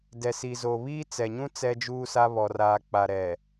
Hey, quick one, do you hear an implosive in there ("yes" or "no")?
no